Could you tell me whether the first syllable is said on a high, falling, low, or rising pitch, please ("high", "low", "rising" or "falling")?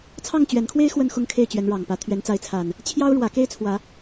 falling